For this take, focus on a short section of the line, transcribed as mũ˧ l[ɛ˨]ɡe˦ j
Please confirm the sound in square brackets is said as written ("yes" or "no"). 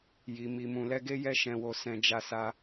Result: no